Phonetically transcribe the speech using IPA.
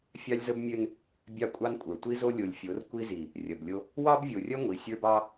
fʲɑ˦lʲzə˦bmʲø˦n | bʲɑ˦kʷʼɑ˦nkʷʼə˞˨ tʷi˦zo˦lʲo˨lʲfʲo˨˦r kʷi˦zi˨ | rʲɐ˨blʲo˦ | wɑ˦bvʲo˨rʲɐ˦ ŋʷi˨sʲə˞˦bɑ˦

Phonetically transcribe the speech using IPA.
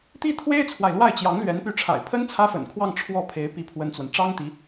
t̪i˥t̪ʰwe˥ɪ̯t͡sʰwa˨ɪ̯ lwa˥˩ɪ̯t͡ɕjɑ˧˥ŋlɥɛ˧˥n py˧˥ʈ͡ʂʰa̰˨˩ɪ̯pʰə˥n t͡sʰä˥fə̰˨˩nkʰwɑ˥˧ŋ ʈ͡ʂʰwɔ˥˩pʰe˧˥ɪ̯ pi˥pʰwə˥nt͡swə˨n ʈ͡ʂɑ˥ŋt̪i˧˥

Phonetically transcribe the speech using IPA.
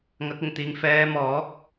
ŋɐ˨˥k̚ɪ˨˩ŋt̪iː˨˧ŋ fɛː˨˧mɔː˨˥k̚

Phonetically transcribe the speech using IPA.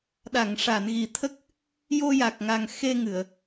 ɗa˨˩˨ŋʂa˨˩˨nɣi˨˩t̪ʰə˦˥k̚ | jo˧ja˨˩k̚ŋa˨˩ŋ xe˧ŋɨ˨˩˨ə̯

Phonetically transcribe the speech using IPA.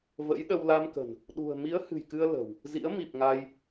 və̰˧˥jɗə˧w la˧mkə̤˨˩n | ɗṳ˨˩ə̯ mi˨˦ə̯hɨ̤˨˩jkɨ˧ə̯ lə̤˨˩w | zḭ˧˥ə̯ mi˨˩p̚ŋa˧j

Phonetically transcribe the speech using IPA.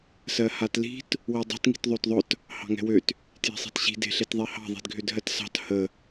sɜhatli̤t | widˤe̤t ŋi̤tðˤøtðˤʊt | hɑ̤ŋɛ̤wøt | tje̤sˤi̤tɕi̤ de̤ɬetðˤehɑ̤ ðˤi̤dɡʱødɦɜtsɑ̤t hə

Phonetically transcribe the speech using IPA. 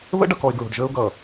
βə̰˦ɖʌ˨kɔ˨ɪ̯ ɡɹo̤˨ɖʒəː˦ʊ̯ɡʌː˨

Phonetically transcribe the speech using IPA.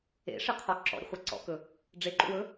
ḛʂɨqʰɔ ǁɔ̰ɾʲə̰χʷa ǀɔ̰kɵ | ɖ͡ʐeǃṵwɵ

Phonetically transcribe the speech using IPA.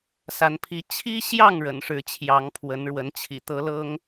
sa˨˦npʰi˨˦ t͡ɕʰi˦ɕjɑ˥˨ŋ ɻə̰˨˩nʂɻ̩˨˦t͡ɕʰjɑ˨˦ŋ pʰwə˨˦nɻwə˨˦nt͡ɕʰḭ˨˩ t̪ɤ˨˦ lɤ˦ŋ

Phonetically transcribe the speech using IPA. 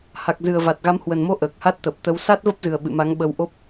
ha˨˩k̚zɨ˨˩ə̯va˨˩t̚ɣa˨˦m hwə˨˩nmo˧ ʔəː˨˩k̚ha˦˥t̚ t̪ə˨˩p̚t̪ə˨˦w sa˦˥t̚və˦˥p̚zɨ˨˩ə̯ ɓɨ̰˧˨ ma˨˦ŋ ɓə˧wʔo˦˥p̚

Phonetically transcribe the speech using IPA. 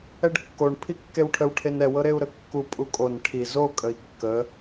ɛɖkːoɳ pʰikːewʈʰəw ʈʰenɛ wɤɾeu̯ɾəkːu pʼukʼon ʈʰi zo kʼəi̯kːə

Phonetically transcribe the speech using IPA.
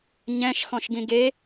ɲɛ̃ʃ xɔ̃ʃɡĩɡe

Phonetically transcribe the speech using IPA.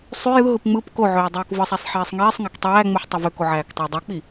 sˤy jɯɦɯp ŋ͡mɯp koʕøː dˤøːkvɯsˤæsˤ ħiːsˤŋiːsˤŋæk tˤæːŋ͡muħ tˤɑvøko ʕæːktˤɑdˤok͡pi

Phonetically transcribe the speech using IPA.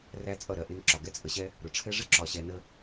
ræ˦t͡sʼʌ˦˨ɾɜ˨ ʔɪ˧n ǁɒ˨ɡɛ˦t͡sʼə˧ɕɛ˦ | ɾʊ˨ʈ͡ʂʰɛ˦ ʐɪ˦ǁɒ˨ɕɛ˨nə˧

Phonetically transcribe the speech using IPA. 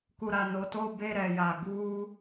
ku˨ɾa˨no˨to˦˨ be˦˨ ɾɛ˨ja˨ ɡuː˦

